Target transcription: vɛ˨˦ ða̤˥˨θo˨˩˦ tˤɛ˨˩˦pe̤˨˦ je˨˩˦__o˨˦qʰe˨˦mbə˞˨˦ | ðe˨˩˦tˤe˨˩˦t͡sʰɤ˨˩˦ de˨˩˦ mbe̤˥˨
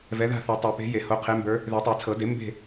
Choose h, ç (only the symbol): h